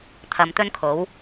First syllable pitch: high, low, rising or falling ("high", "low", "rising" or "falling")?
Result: low